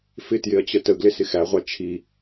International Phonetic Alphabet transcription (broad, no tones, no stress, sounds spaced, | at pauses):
f ɪ t j ɪ ɐ̯ t͡ɕ ə t ə ɡ l ɪ s ɪ x æ ʁʷ ɑ t͡ʃʰ i